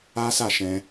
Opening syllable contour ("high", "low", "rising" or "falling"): high